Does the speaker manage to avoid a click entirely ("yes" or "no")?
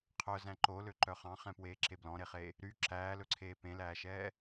no